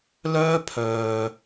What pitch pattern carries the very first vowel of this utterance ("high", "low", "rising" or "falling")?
high